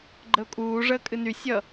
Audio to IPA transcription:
ɡ͡ǃəʊ̯kʼuːʐəː kʼɨny sʲʌ

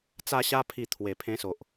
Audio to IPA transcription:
t͡sa˧ɕa˧pʰi˨˩ t̪ʰwe˨˩pʰẽ˦so˨ʔ

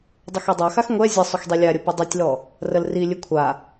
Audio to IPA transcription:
dˤəxydˤaxax ŋʷɛ zʲə sˤʏxdˤilʲaɾʲə pədˤytʲlɔ | rəlrilʲɨ kʷʰa

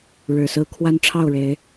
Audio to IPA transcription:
ɻɻ̩˨˩sɹ̩˦ kʰwa˦n ʈ͡ʂʰɑ˥˨ʊ̯ɻe˨˦ɪ̯

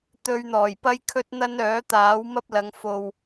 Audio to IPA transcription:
t̪ɵ˧ɥn̪ɔː˨˩jpɐ˥j kʰɵ˥t̚n̪ɐ˥nœː˨˥t̪aː˨˥w mɐ˥p̚lɐ˨˧ŋ fo˨w

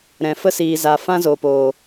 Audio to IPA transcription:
ɾɛ̃˨fə˦siː˨za˨ fã˦zo˨poː˨

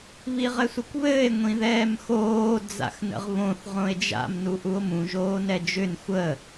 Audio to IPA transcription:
βiʁɘsʷəkʷβɘːe̯ ŋʷĩðɛːmxoː d͡za̰xnə̰ʁβõθ ʁõe̯d͡ʒa̰m nuʔuo̯mũ ʒoːnɛd͡ʒʏn xʷə

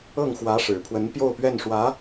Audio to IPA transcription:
ɤ˥˩ŋ xwä˧˥ʂɻ̩˨˩pʰwə˧˥n pjo˥˧ʊ̯pɥɛ˥˩nʂwä˧˥

